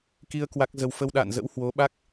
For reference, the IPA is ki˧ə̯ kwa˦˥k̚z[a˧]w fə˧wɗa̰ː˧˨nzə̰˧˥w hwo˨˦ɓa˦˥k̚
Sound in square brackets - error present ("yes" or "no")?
yes